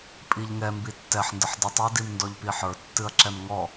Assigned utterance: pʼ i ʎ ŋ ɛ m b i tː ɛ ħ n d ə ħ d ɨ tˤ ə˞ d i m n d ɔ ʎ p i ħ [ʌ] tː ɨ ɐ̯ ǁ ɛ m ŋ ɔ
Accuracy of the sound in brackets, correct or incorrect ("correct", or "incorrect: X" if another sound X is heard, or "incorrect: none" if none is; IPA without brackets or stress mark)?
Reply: incorrect: ə˞